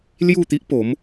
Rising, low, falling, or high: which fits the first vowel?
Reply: falling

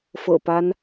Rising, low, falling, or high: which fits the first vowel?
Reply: low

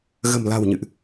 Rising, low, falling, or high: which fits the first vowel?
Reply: low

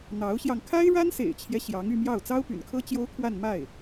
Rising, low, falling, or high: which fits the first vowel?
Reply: rising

